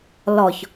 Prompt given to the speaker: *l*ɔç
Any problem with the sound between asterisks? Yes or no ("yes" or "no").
no